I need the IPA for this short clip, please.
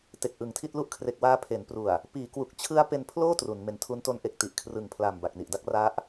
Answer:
t e˨˩ k̚ ʔ ɯ˨˩ ŋ tʰ i˥˩ t̚ l u˦˥ ʔ kʰ r e˨˩ k̚ w aː˧ pʰ e˩˦ n p r u˨˩ a̯ | p iː˩˦ k w u˨˩ k̚ t͡ɕʰ ɯ˦˥ a̯ p e˧ n pʰ l oː˥˩ t r u˩˦ n m e˨˩ n tʰ u˦˥ n t o˦˥ n ʔ e˨˩ k̚ t i˨˩ ʔ kʰ r ɯ˨˩ ŋ pʰ l aː˨˩ m b a˨˩ k̚ n i˨˩ ʔ d a˥˩ k̚ r a˦˥ ʔ

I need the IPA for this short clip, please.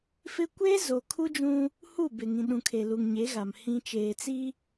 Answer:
f ɪ˦ kʷ eː˦ z o˨ kʰ u˦ d͡ʒ ũ˦ | h u˦˨ b ɪ˨ ŋ ĩ˨ ɗ ũ˨ kʰ e˨ l u˨ ŋ ɲ e˨˦ ɣ a˨ m h ĩ˨ t͡ʃ eː˨ t͡s i˦

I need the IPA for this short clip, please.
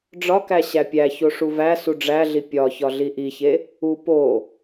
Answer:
ɖ͡ʐ ɒ k æ ɕ æ pʲ æ ç o ʂ u v æ s u ɖ͡ʐ æ ɮ i pʲ ɒ ç ɒ ɮ i ʔ i ç e | u p o

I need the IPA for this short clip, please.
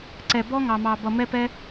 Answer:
ǀ ɛ˧ b ɔ˥ ŋ ɑ˧ m ɑ˧ b ʌ˧ m ɛ˥ p ɛ˥

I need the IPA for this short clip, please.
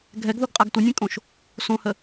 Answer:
ɡʱ ɛ ɡ ð o ɡ qʼ a ɡ tʷ ʌ nʲ ẽ kʼ õ ʃ | s õ h ə

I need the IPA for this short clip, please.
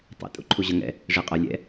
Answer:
tˤ ɛ̰ tʼ ṵ ǃʰ u ʑ ʌ ŋ ɛ̰ | ʐ i qʼ ʌ lʲ ɛ̰

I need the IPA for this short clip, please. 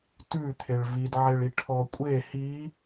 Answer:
t ʉ t̪ʰ e ɭ v i d ʕ e ɭ i ʈʰ ɔ kʷʼ e h i

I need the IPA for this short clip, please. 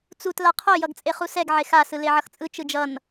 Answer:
t͡s u t l a qʰ o j ʌ ɡ t͡sʼ e χ u s ɛ ɡ ʕ e x a s ɯ l e ʕ ʌ x t͡sʼ ɯ t͡ʃ ɯ d͡ʒ ʌ n

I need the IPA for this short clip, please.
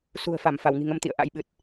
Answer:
s ṳ˨˩ ə̯ f a˧˩ m f a˧˩ w ŋ i̤˨˩ ŋ ə˧ m t̪ ḭ˧˨ ə̯ ʔ a̰˧˥ j ɓ ɨ˨˩ t̚

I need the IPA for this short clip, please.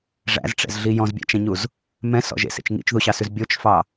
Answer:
ʐ æ̰ z ʈ͡ʂ ɛ̰ z ɮ i j ɔ̃ z bʲ æ̰ t͡ʃ ɛ̃ ɲ u z | m ɛ̃ s ɔ̰ ʒ ḛ s ḛ t͡ʃ ŋ ḭ t͡ʃ ð u ɕ ɑ s ʉ z bʲ o t͡ʃ f ɑ

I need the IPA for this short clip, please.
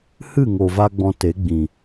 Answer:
h ɨ˦˨ ŋ o˨ v a˧ ɡ͡b ɔ̃˧ t e˨˦ ɡ͡b ĩ˨

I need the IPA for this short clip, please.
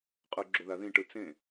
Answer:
qʼ ɯ ɡ͡ǁ o ð a ð ĩ ʈ ɯ t͡s ẽ

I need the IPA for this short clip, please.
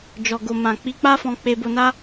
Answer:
d͡ʒ ɔ˨ ɡ o˨ m ã˨ k͡p i˨˦ k͡p a˦ f ɔ̃˧ k͡p e˧ b o˧ n a˦

